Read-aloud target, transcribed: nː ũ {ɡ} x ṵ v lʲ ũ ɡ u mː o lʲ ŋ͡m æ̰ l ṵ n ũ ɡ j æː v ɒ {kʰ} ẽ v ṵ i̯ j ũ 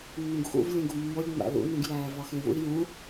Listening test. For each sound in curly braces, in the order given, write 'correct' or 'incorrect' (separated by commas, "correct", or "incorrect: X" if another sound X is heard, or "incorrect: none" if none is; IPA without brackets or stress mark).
correct, incorrect: x